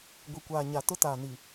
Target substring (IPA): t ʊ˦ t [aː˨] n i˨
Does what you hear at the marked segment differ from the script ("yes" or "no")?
no